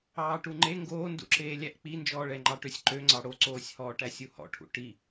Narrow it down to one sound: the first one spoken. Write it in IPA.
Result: ɑː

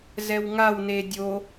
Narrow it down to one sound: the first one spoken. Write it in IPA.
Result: z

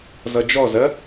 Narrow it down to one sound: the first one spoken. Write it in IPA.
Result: z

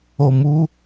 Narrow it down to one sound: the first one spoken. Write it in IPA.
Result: o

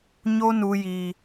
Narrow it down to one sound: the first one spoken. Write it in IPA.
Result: ɲ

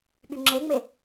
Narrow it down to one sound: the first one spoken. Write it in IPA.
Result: ɓ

